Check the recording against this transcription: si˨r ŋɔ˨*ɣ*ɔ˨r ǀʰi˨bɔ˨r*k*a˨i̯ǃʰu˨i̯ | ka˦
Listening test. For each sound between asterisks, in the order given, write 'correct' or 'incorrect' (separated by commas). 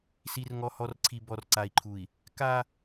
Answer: incorrect, incorrect